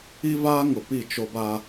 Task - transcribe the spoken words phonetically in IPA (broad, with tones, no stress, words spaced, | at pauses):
i˦vaː˦ŋʊ˨ pi˦˨t͡ʃo˦ba˦